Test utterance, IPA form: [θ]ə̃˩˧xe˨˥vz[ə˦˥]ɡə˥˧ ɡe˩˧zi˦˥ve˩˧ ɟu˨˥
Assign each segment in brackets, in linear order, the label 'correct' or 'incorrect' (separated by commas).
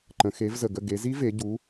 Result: incorrect, incorrect